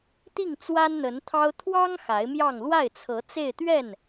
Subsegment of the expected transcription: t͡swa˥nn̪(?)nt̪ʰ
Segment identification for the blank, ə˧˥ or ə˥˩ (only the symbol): ə˧˥